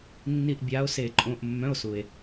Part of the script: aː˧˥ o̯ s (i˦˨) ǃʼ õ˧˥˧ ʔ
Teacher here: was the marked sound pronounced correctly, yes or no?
no